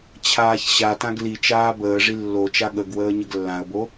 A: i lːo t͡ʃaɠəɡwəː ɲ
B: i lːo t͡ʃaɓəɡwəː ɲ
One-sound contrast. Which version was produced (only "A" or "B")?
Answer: A